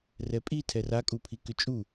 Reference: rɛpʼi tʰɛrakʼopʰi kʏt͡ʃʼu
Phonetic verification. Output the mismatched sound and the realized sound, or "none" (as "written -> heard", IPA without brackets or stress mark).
o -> u